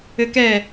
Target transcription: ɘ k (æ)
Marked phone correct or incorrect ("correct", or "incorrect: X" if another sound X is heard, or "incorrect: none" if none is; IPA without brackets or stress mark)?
incorrect: ɛ